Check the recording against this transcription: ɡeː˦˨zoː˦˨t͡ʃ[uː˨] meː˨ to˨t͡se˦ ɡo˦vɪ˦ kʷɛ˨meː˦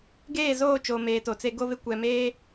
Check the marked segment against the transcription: incorrect: oː˨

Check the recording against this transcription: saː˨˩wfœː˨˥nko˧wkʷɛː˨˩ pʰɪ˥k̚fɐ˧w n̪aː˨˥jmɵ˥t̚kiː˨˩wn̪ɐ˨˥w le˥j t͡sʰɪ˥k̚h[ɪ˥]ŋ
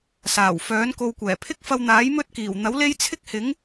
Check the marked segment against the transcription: incorrect: ɪ˨˥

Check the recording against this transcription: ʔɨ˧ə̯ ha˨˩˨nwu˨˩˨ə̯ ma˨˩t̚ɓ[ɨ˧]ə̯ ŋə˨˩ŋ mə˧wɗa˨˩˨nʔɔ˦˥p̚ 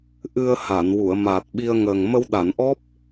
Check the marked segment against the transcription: incorrect: i˧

